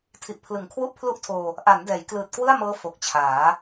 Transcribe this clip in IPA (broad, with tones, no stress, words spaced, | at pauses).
tʰi˨˩ʔpʰlɯ˩˦ŋkʰwu˥˩ʔ pʰlu˥˩ʔtʰoː˧ | ʔa˩˦n dɛː˩˦jklɯː˨˩t̚kwɯ˥˩a̯mɤː˦˥ fo˨˩k̚t͡ɕʰaː˩˦